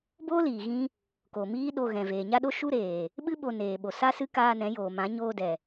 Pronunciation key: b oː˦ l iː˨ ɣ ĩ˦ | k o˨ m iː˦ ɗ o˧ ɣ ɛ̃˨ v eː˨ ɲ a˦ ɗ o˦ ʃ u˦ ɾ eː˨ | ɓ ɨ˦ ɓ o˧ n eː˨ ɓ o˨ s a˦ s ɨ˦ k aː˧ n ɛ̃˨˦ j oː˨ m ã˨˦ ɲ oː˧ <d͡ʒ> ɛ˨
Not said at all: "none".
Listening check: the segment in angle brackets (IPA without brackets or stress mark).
d